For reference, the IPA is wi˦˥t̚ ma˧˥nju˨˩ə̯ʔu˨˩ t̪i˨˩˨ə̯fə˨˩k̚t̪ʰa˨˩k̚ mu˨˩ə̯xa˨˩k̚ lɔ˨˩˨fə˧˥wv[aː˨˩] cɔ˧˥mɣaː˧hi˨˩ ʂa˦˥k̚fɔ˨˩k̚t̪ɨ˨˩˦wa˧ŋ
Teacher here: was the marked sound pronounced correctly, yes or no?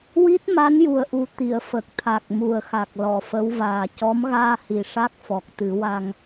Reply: yes